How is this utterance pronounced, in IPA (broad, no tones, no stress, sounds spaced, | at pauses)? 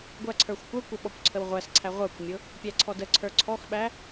ɡʷ æ ǀʰ ə˞ xʷ kʷ ə˞ kʷ ə ɓ ɔ kʷ ǀʰ ə w ʁʷ æ s ǀʰ æ ʁʷ ə˞ kʷ mʲ ʊ | pʲ æ ǀʰ ɔ d ə ǀʰ ə˞ ǀʰ ɔ x ɓ æ